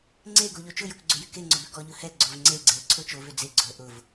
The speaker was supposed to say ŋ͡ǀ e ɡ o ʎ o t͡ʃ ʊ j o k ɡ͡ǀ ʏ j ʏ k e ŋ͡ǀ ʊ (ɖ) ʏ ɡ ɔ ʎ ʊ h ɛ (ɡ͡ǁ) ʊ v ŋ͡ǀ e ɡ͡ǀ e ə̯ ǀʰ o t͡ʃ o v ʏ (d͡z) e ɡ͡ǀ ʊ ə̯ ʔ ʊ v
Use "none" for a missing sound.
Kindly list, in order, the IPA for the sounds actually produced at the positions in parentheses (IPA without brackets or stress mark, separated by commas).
b, ɡ͡ǀ, d͡z